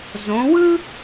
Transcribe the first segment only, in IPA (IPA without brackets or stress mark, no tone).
z